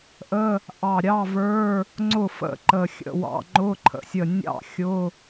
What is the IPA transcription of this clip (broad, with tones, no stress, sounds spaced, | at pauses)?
ʔ ə˧˥˧ | ʔ ɑ˧˩ ɾʲ ɑ˧˥˧ v ə˞˧˥˧ | ŋ͡ǀ ʊ˥˩ f ə̰˥˩ ǃ ə˧˩ xʲ ə̰˧˥˧ w ɑ̰˧˥˧ ŋ͡ǃ ʊ˧˥˧ ǃʰ ə̰˧˩ sʲ ə˧˩ nʲ ɑ̰˥˩ xʲ ʊ˧˥˧